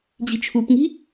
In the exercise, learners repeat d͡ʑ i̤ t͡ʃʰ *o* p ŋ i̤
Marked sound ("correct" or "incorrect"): incorrect